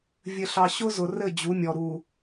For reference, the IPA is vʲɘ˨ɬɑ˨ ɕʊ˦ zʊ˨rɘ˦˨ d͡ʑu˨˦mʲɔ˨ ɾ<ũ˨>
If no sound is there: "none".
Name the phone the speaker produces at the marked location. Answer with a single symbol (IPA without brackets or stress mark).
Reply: u˨